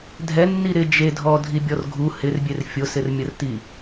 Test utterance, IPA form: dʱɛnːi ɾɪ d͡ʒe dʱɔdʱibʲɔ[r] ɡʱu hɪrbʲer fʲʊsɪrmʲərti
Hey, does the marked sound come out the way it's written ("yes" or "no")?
yes